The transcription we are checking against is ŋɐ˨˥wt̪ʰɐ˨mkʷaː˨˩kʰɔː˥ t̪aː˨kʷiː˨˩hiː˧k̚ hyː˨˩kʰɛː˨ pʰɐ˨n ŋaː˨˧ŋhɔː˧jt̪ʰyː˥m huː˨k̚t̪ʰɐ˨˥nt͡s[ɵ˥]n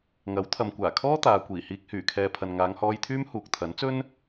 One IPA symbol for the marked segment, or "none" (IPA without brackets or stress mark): ɵ˥